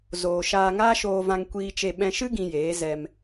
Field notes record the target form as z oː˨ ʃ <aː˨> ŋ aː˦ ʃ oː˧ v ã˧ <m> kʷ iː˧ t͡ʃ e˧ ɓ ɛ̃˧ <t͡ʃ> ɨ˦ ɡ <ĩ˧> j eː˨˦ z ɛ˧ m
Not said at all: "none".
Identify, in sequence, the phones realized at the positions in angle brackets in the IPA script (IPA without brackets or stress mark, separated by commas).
aː˧, ŋ, ʃ, ĩ˧